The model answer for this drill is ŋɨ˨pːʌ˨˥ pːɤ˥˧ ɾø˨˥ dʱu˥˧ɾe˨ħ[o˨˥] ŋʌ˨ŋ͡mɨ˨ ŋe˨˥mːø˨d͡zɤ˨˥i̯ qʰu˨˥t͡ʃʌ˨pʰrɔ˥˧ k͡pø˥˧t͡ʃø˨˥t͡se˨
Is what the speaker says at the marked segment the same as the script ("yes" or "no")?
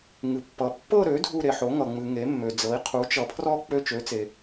yes